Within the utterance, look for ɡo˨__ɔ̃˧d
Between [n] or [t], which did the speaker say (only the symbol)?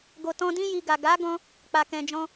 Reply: t